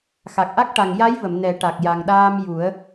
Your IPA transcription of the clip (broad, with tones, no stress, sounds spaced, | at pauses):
x a˨˩ k̚ ʔ a˦˥ k̚ ʈ a˨˩ ŋ j a˧˥ j v ə˨˩˨ m n ɛ˨˩˦ ʈ a˨˩ k̚ j a˨˩ ŋ ɗ aː˧ m j u˨˩˦ ə̯